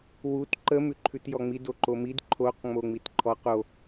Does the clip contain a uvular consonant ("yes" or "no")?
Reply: yes